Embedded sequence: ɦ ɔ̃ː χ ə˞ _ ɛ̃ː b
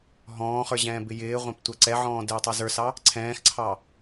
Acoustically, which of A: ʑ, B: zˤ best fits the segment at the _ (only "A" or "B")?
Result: A